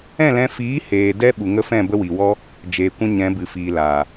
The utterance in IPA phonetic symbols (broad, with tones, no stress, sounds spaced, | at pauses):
ɛ̃˦˨ l ɛ̃˧ f iː˨˦ h eː˨ d ɛ˦ ɓ u˨ ŋ ə˦ f ɛ̃˦˨ b ə˦ w i˨ w ɔ˦ | d͡ʒ eː˨ kʷ ɛ̃˦ ɲ ɛ̃˨˦ b ɨ˨ f iː˨ l aː˨